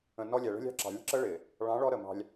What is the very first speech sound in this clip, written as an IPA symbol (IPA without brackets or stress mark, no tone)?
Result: ə̃